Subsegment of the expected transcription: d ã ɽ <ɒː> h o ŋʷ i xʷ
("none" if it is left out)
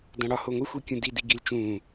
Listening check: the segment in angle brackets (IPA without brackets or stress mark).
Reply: ɒ